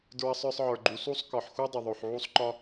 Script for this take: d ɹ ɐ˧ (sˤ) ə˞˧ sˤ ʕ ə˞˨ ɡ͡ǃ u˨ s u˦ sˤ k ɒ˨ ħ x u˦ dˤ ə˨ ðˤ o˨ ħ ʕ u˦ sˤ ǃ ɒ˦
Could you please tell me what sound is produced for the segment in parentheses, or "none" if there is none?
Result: sˤ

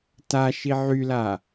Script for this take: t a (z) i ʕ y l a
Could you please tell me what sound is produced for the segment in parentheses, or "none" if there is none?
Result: ʃ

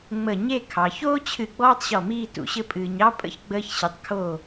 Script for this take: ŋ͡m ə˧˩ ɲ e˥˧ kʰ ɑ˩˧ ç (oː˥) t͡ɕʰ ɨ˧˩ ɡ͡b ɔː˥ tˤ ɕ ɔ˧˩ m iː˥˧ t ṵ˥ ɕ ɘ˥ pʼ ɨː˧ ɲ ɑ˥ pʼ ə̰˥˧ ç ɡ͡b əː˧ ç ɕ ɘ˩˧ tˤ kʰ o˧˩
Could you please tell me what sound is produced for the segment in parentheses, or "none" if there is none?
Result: oː˥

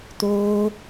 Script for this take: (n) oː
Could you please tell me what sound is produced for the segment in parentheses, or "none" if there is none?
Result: t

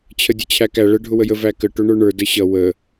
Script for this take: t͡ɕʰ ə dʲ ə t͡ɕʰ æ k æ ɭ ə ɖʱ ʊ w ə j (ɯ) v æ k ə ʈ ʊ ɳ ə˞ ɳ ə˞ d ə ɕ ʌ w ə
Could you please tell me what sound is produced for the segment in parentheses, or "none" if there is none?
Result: ə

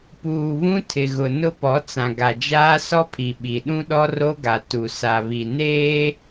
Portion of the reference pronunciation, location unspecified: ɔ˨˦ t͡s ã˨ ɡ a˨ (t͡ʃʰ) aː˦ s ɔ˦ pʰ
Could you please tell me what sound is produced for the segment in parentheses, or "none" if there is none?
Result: d͡ʒ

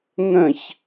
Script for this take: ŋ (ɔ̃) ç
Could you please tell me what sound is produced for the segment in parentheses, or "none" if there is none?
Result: ə̃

